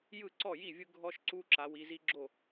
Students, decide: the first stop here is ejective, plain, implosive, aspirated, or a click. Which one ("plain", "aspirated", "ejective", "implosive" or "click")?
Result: click